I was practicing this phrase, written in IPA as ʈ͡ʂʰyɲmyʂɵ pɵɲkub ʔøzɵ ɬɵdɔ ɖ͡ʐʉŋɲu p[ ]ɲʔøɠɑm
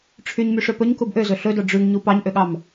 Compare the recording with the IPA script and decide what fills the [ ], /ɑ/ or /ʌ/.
ɑ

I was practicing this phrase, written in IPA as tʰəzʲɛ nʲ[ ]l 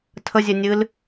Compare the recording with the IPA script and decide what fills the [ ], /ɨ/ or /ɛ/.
ɨ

